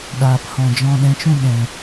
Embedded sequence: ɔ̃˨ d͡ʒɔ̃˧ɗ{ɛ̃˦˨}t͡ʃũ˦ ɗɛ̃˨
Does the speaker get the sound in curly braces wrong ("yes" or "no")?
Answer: yes